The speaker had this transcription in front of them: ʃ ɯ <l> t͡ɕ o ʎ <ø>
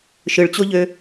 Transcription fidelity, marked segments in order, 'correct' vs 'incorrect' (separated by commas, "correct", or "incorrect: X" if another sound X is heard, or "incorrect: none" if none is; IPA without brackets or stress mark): incorrect: ɭ, correct